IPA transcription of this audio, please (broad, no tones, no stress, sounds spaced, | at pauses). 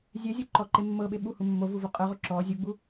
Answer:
zʲ ɛ zʲ o ǃ ɔ ǃ e mː ɤ ɓ e ɓ u h u mː o v u v o qʼ ɤ ʁ o ǁ ɔ zʲ u ɡ͡b u